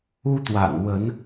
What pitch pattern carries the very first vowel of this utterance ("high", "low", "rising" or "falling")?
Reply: high